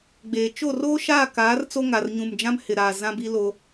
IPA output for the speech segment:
ɡ͡b eː˨ t͡ʃ o˦˨ r oː˦ ʃ aː˦˨ k aː˨˦ r t͡s o˦ ŋ a˨ r ɲ ũ˨ m d͡ʒ ã˦ m h ɪ˨ ɾ aː˨ z ã˦ b i˦ l o˦

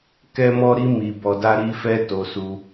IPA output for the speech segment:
k ɛ˦ m ɔ˦ ɾ i˦ m i˧ b ɔ˧ d a˦ ɾ i˦ f ɛ˦ t o˧ s u˧

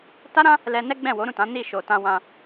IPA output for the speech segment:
t a˦ ɾ ã˦ | l ɛ˧ n ɛ˦ ɡ͡b ɛ̃˦˨ w o˨˦ ɾ ũ˦˨ t ã˨˦ n i˦˨ ʃ o˨ t ã˧ w ã˧

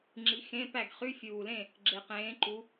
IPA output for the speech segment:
ŋ͡ǁ i˨˦ x ẽ˧˥˧ p æ˥˨ ɡ χ y˧˥˧ fʲ uː˨˩ l ẽ˥˨ | ɡ͡ǁ e˨˩ q ẽː˨˦ ǃ u˨˦

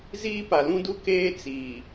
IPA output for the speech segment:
z iː˦ p a˨ l ũ˦ d u˦ k eː˦ t͡s iː˨

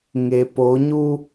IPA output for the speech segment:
ŋ e˨ p o˨˦ ɲ u˦

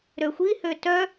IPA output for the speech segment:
ɾ ø xʷ i h ø t œ

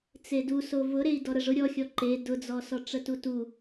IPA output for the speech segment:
t͡s e d u s o v ʊ ɾ e i̯ d ɔ ɾ ə ʐ ʊ ɾʲ ɔ xʲ ɔ ǃ e d ʊ d͡z ɔ s ɔ ʈ͡ʂ ə t u t u

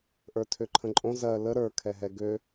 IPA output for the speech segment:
ʔ ə˞ tʰ ø ǃʰ ə̃ ǃʼ õ z ɜ l ə ɾ ə˞ kʰ ɛ ɦ ɛ ɡ ø

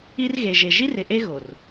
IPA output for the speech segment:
i˦ r ɣ e˨ ʒ e˨ ʒ i˦ r ɪ˨ ʔ e˦ ɣ o˨ r

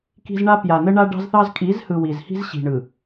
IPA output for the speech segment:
k i̤˦ z ɳ a˦ p j a˨ n ə˦ ɳ a˦ ɖ ɑ̤˦ z θ ɑ˦ z kʼ i˨˦ z h ɯ˨ w i˨ z h i̤˦ z ɕ i̤˨ ɳ ɯ˨

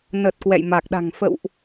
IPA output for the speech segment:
n ə˨˩ t̚ k w ɛ̰˧˨ j m a˨˩ k̚ ɗ a̤˨˩ ŋ f ə̰˧˨ w ʔ

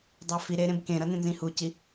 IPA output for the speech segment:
dˤ a f i ɾ e ɾ ẽ b k ẽ ɾ ʌ n ẽ n z ĩ h u c i

